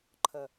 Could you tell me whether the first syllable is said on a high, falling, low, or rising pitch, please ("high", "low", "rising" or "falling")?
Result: low